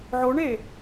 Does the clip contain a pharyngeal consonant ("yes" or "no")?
yes